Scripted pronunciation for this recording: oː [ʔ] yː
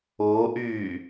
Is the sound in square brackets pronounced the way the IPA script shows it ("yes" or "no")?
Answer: yes